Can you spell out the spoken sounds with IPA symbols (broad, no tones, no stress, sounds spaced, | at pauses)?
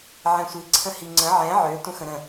ʕ ɛ̃ sʷ i ǀʰ ə̃ h i ŋ͡ǀ ə̃ ʕ ɛ̃ ʕ ø tʷ ə̃ x ə̃ ɾ ə̃